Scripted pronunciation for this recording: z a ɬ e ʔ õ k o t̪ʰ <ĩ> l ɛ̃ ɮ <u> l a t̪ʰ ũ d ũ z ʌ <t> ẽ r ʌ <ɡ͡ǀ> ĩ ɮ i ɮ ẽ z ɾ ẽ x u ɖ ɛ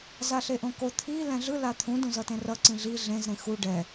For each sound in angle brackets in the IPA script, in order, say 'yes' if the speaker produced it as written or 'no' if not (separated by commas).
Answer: no, no, yes, no